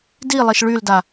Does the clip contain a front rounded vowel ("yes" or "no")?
yes